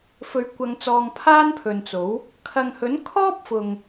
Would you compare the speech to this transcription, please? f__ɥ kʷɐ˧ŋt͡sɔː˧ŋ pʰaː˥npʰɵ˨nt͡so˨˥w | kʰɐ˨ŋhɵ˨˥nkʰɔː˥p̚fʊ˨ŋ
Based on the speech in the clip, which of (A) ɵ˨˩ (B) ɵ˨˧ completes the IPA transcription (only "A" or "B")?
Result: B